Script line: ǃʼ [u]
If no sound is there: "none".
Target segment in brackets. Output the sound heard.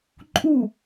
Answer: u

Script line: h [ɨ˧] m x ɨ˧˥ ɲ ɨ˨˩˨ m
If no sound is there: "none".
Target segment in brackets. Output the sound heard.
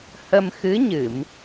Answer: ə˧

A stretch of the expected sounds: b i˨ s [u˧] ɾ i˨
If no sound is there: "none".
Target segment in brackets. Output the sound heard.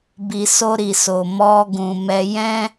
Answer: o˧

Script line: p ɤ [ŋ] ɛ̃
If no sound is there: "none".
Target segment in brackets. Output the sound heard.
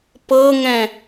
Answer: ŋ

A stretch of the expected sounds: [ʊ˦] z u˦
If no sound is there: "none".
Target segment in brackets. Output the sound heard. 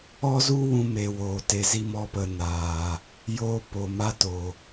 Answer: ɔ˦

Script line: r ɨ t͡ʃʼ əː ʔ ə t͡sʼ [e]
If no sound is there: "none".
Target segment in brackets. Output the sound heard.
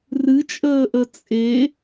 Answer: e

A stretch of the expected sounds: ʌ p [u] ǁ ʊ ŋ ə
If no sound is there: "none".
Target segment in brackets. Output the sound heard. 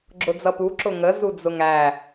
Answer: u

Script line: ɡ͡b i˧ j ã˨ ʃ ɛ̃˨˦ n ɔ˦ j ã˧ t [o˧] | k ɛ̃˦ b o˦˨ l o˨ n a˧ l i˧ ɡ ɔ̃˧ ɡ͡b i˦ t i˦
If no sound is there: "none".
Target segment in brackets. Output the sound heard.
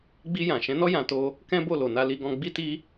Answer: o˦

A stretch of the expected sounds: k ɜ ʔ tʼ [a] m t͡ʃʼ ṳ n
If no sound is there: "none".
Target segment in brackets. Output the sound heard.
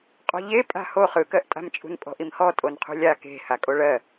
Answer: a̤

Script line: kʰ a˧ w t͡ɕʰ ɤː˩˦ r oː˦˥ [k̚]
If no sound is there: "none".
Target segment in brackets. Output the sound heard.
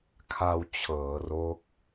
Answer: k̚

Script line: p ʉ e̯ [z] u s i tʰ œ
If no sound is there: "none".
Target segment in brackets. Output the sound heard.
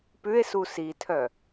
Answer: s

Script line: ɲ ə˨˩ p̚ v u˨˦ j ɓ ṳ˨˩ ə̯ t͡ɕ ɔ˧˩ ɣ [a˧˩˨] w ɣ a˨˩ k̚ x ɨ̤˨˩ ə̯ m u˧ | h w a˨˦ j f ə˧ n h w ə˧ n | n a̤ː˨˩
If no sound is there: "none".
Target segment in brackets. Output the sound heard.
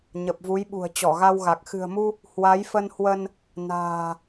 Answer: a˧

